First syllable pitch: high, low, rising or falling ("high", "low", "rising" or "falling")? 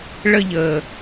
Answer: high